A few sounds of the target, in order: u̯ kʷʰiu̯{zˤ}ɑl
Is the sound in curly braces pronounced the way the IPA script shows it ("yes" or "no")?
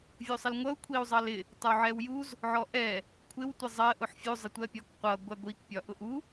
yes